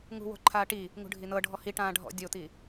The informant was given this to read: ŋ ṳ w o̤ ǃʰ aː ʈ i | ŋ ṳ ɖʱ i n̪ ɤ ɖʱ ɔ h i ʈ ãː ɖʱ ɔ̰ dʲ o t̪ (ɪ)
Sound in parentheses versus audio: incorrect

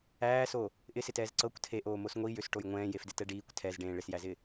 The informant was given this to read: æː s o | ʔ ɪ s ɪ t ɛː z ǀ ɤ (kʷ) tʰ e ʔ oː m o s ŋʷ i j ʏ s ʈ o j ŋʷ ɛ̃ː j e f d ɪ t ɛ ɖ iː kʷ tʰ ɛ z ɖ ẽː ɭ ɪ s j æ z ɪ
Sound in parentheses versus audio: correct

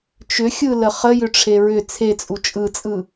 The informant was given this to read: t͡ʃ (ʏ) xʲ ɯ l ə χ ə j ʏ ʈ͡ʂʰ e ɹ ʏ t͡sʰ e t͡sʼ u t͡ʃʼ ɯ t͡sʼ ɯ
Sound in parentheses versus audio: correct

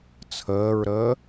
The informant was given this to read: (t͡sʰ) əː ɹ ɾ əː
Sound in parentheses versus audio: correct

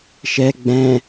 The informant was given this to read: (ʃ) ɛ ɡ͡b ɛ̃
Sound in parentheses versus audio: correct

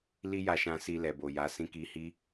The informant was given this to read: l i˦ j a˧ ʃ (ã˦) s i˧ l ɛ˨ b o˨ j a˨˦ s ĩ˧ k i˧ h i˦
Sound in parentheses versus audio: incorrect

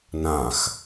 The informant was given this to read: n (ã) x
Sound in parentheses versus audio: correct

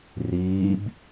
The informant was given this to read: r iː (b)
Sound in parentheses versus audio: correct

